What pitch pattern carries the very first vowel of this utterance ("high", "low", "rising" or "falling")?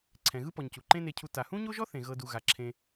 low